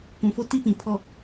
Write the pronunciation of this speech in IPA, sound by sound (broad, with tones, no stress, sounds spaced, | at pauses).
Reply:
kʷ ũ˨ f o˦ t i˦ p ĩ˨ pʰ ɔ˨